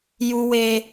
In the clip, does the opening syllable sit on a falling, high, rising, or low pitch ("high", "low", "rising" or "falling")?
high